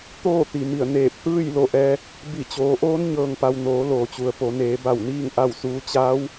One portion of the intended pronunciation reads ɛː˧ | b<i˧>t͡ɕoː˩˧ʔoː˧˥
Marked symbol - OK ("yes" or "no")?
no